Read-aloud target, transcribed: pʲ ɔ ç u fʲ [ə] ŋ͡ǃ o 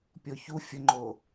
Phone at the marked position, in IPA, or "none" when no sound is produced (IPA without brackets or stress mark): ə